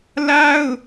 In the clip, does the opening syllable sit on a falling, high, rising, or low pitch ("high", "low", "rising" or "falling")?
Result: high